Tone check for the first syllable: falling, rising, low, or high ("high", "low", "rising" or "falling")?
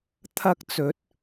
high